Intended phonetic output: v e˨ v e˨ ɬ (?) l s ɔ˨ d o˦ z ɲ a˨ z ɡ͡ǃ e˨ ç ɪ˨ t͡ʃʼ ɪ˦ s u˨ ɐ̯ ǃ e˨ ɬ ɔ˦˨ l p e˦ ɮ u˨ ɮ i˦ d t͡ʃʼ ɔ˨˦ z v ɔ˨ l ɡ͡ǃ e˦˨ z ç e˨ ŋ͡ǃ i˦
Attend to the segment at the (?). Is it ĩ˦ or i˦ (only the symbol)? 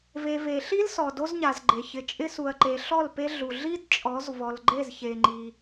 i˦